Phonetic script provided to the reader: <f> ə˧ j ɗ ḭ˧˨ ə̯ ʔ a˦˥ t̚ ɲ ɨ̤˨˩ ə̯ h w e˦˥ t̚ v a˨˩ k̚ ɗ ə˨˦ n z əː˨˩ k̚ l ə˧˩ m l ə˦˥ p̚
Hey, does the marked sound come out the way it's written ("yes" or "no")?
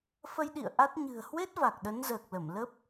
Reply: yes